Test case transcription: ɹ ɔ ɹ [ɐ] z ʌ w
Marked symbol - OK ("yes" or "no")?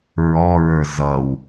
no